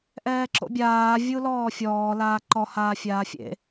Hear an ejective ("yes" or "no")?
no